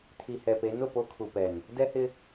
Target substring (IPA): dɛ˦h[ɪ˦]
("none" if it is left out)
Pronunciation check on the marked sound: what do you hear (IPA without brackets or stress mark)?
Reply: ɪ˦